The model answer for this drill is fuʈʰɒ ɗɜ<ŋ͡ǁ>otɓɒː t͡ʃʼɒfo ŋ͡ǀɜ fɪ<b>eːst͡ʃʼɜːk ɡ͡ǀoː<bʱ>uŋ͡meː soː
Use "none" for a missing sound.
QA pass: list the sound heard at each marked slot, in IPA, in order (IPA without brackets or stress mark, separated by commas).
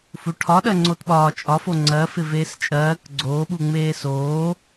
ŋ͡ǀ, v, ɓ